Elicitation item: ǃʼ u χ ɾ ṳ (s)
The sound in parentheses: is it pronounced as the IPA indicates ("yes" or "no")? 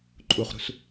yes